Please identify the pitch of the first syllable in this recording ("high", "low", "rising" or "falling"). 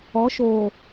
rising